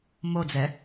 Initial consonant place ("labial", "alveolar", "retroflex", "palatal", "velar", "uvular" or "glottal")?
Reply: labial